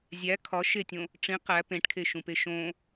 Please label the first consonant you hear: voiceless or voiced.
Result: voiced